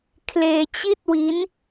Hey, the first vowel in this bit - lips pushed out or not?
no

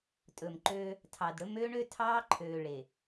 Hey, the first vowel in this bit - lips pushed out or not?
yes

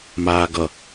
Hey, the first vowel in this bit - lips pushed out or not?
no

